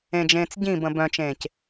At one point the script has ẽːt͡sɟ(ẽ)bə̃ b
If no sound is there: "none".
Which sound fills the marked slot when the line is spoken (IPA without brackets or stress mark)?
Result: ĩ